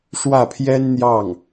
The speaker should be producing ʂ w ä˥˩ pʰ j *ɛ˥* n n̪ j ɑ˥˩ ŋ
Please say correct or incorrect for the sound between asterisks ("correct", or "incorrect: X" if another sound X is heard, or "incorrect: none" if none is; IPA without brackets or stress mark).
correct